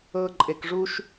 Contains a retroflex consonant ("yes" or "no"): yes